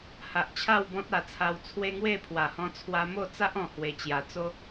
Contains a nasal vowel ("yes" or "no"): yes